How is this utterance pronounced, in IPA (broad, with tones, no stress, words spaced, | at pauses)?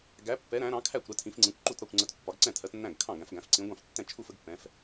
ɡæ˨˦pːɛ˨˦ ɾæ̃˨˦ɾɑ̃˨˦kʰæ˥˩kʷɾə˨˦ tʰĩ˨˦fŋ͡ǀĩ˨˦kʷǃu˥˩t ɾɒ˥˩kʷŋ͡ǀə˨˦t pːɒ˨˦ɡǀɛ̃˥˩tʰɜ˨˦tnːæ̃˥˩ɡ kʰɑ̃˥˩ɡæ̃˨˦fɡæ̃˨˦f ǀĩ˨˦ɡʷɑ̃˥˩ftːɛ̃˥˩ t͡ʃʰu˥˩fə˨˦ɡpːɛ̃˨˦f